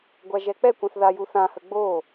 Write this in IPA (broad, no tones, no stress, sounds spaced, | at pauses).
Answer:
ɡʷ a ʒ ɛ k͡p ɛ kʷ ɛ̃ θ ð a j u θ ã h ə ɡ͡b o